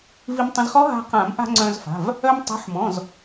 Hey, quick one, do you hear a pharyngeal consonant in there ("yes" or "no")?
yes